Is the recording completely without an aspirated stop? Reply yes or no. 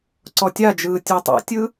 yes